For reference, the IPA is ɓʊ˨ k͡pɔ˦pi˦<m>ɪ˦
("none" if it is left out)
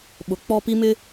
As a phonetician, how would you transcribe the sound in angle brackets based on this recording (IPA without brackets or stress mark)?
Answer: m